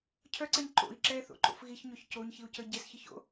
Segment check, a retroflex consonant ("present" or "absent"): absent